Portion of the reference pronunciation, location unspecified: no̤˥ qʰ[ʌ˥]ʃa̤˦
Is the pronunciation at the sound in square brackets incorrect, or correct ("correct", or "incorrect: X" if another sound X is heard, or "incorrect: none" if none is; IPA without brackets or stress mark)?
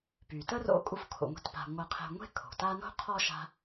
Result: incorrect: ɔ˥